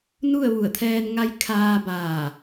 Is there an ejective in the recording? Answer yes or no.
no